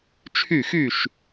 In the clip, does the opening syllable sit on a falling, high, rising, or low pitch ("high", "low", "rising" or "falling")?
falling